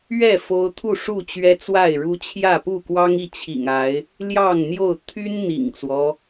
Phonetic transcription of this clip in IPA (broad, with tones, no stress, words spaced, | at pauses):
ɥɛ˥˨ fo˦ʊ̯ t̪ʰu˥˨ʂu˥˨ t͡ɕɥɛ˦t͡swa˥˨ɪ̯ɻu˦ t͡ɕʰjä˥˨pu˥˨ kwɑ˦ŋi˥˨t͡ɕʰḭ˨˩ŋa˨˦ɪ̯ | ljɑ˥˨ŋn̪jo˥˨ʊ̯ t̪ʰy˦n n̪ḭ˨˩ŋt͡swɔ˦